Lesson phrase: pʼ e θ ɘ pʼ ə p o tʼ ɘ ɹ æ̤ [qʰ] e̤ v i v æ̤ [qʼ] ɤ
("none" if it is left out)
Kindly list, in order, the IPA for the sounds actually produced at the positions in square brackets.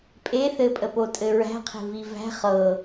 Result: qʰ, χ

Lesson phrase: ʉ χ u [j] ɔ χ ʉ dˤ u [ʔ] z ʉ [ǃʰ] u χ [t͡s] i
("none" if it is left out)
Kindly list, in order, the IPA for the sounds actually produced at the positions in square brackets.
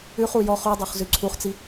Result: j, χ, ǀʰ, t͡s

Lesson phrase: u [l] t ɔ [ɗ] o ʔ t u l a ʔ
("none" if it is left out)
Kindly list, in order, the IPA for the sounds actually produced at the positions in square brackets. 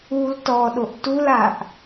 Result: l, ɗ

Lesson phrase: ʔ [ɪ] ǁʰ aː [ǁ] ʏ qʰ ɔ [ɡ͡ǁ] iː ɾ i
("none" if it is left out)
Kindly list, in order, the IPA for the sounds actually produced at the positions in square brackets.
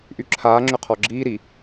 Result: y, ŋ͡ǁ, ɡ͡ǁ

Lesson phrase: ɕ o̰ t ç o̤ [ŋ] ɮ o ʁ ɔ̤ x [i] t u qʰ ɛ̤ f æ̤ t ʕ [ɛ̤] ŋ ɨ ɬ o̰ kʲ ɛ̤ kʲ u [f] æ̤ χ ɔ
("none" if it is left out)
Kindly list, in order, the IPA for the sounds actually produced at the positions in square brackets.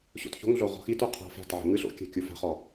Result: ŋ, i, ɛ̤, f

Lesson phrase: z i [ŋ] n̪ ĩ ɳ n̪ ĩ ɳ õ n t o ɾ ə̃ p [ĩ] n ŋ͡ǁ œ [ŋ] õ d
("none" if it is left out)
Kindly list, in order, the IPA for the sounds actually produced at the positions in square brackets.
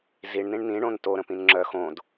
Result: ɳ, ĩ, x

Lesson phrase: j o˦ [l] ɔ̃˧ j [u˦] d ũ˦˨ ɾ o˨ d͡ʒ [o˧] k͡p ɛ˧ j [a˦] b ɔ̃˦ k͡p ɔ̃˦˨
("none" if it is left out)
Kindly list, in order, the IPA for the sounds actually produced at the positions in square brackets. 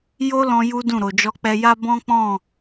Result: l, u˦, ɔ˧, a˦

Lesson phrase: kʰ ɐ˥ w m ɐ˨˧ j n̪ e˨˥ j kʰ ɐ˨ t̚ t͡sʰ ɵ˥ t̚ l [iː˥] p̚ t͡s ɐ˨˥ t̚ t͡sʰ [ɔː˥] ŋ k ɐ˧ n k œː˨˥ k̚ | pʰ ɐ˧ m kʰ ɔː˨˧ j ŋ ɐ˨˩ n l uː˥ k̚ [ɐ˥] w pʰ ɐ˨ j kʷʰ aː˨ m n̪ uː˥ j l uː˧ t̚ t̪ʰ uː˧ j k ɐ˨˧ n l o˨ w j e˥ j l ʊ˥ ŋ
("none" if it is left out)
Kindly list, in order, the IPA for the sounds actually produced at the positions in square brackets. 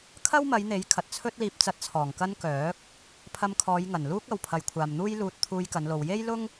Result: iː˧, ɔː˨˩, ɐ˨

